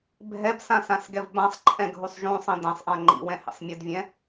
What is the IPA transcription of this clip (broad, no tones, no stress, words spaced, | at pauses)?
bʱɛbsãsãsɡɛv bãsˤǃʼɛ̃ɡʱusˤ ʒũsˤĩ dɛ̃sˤʔã ŋ͡ǃḭwɛ̃hḭsˤ mʲɯdvʲɛ̃